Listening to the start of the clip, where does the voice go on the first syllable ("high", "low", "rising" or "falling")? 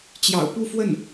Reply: low